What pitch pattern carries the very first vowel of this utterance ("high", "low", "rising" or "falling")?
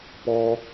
low